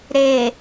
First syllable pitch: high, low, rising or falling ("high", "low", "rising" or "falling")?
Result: low